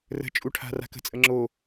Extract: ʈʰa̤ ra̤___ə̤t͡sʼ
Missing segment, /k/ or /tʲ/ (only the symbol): k